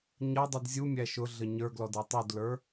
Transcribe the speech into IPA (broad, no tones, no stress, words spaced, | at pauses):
ɲʌdˤud zʲumʲæ ʃʊ ɮəɲə˞ɡlɔd ɛtˤudlə˞